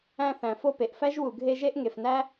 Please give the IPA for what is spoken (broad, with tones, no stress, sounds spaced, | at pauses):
æ̃˥ θ æ̃˨ f o˦ p e˩ ʔ f æ˥ ʒ w u˨ ɡʱ e˦ ʒ e˥ ʔ ŋ e˨ f n æ˥